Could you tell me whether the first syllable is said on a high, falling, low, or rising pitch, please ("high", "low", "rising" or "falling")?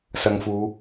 low